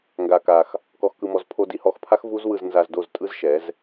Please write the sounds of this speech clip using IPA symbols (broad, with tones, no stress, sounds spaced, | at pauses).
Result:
ŋ ɡ a˧ k a˧ x | k ɔ˧ x k ɯ˧ m ɔ˧ z pʰ o˧ d i˧ h ɔ˧ x pʰ a˦ x v u˦ z w ɯ˧ z n z a˧ z d o˦˨ z tʼ ɯ˦ z ʃ ɛ˨˦ z